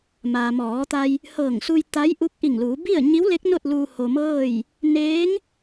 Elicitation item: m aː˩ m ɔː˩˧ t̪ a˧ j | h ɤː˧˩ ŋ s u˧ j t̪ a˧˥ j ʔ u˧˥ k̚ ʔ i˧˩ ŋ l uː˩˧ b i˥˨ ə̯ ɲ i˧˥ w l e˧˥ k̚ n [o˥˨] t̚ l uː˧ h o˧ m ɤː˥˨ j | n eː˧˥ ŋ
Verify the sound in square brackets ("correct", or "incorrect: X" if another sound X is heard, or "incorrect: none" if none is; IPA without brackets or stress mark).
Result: correct